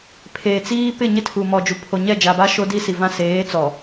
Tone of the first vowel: low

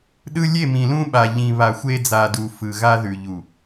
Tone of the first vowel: high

